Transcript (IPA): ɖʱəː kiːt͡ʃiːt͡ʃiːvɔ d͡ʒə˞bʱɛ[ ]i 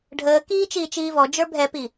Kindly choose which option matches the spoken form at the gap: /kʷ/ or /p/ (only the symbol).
p